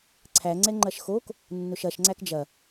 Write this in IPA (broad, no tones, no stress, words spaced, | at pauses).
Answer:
ǀʰæŋ͡ǀɛ ŋ͡ǃɐʃxok | nːʊʃɐʃŋ͡ǀæk d͡ʒɐ